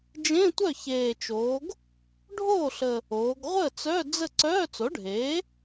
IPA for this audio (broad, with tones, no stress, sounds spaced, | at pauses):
d͡ʒ ẽ˧˥˧ tʷ œ˥˩ ç eː˨˩ t͡ʃ oː˩˧ ɡ | ɖʱ oː˥˩ ɬ ə˨˩ | oː˩˧ ɡ ʁʷ əː˥˩ t͡s œ˧˥˧ d͡z ə˥˩ ǀ œː˧˥˧ t͡s o˩˥ ɖʱ eː˩˥